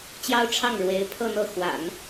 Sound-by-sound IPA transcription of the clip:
t͡ɕ j ɑ˥ ʊ̯ ʈ͡ʂʰ ɑ˥˩ ŋ ɻ w e˧˥ ɪ̯ pʰ ɤ˥˧ n̪ ɤ˥˩ x w a̰˨˩˦ n

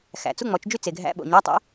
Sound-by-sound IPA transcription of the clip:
x æ̰˨˦ t͡s u˧˥˧ ŋ͡m ɔ˨˦ t͡ʃ d͡ʒ y˥˧ t͡s e˨ ɡʱ æ̰˧˥˧ ɓ o̰˨ ɲ æ˧˥˧ tˤ ɛ̰˦˥

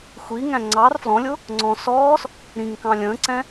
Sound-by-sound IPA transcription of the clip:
xʷ i ŋ æ̃ ŋ͡ǀ ɑ r f l ɔ̃ lʲ ʊ | ŋ͡ǀ ɔ̃ s ɔː s | ɾ ĩ ŋ k ɑ̃ lʲ ə̃ː ǀ ɛ̃

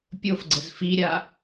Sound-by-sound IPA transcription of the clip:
pʲ o f ɡ͡ǀ ə z f i ɾʲ a

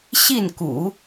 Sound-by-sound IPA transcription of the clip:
ɕ i˥˩ n k ṵ˨˩˦

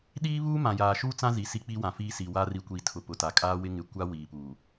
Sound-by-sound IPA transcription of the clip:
ɗ iː˦ β uː˦ m ã˨ j aː˨ ʃ uː˦ t͡s ã˦ z i˨ s i˦ k͡p i˦ w ã˨ f iː˦ s i˨ w a˦ r i˨ kʷ i˨ tʰ ʊ˨ p ʊ˨ t a˨ kʼ aː˦ w ɪ˦ ŋ ɪ˨ kʷ a˦ w iː˨ p uː˨

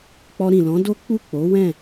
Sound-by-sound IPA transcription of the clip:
k͡p ɔ˧ ɾ ĩ˨ l ɔ̃˨˦ d o˦ k͡p u˦˨ k͡p o˨˦ w ɛ̃˦˨

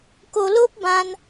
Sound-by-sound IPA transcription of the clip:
k o˧ l o˦ p̚ b ã˧ n

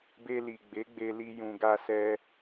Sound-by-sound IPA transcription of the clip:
b e˧ l i˨ ɡ͡b e˨˦ ɡ͡b e˧ l i˧ j ũ˨ ɡ a˧ s ɛ˧

